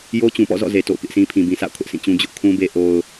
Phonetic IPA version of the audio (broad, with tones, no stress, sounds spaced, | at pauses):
j o˦ t͡ɕ ũ˨ p ɔ̰˦˨ z ɔ̰˦˨ z e˨ t o̰˦˨ ʊ̯ k ɪ˦ ʔ sʰ ĩ˦ pʰ ĩ˨ b ĩ˨ s a̰˦˨ ʊ̯ kʰ ʊ˦ ʔ s ĩ˦˨ t͡ɕ ũ˦ d͡ʑ ʊ˦ ʔ kʰ ũ˦ b e˦ ʔ o˦ ʊ̯